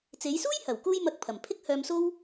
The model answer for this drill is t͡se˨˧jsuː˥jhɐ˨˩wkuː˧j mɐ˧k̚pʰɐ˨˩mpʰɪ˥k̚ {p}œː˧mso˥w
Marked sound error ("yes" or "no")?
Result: yes